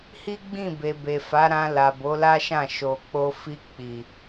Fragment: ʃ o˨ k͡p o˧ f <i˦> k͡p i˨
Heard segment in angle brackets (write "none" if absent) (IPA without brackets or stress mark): i˧